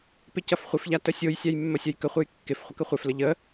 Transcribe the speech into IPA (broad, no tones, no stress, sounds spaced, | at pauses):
p ɪ c ɐ f χʷ ɪ f ʎ a t ə sʲ o j sʲ a j mː ə sʲ ɐ j k ə χʷ e j kː ɪ f χʷ ə k ə χʷ e f l ə ʎ ə